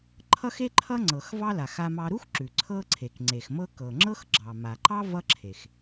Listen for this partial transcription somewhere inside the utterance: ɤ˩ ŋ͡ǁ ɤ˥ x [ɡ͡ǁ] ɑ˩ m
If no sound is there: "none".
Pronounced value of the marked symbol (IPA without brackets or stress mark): ɡ͡ǁ